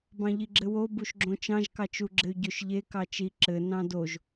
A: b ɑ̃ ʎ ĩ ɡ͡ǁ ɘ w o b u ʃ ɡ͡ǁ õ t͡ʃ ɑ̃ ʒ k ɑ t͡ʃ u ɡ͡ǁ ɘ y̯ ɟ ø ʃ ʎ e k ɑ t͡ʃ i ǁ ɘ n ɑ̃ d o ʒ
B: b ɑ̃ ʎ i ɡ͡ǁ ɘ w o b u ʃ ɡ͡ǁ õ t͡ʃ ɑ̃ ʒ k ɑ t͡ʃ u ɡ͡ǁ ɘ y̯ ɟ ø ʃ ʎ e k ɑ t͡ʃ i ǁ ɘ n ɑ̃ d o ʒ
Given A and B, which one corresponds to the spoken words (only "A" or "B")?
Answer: B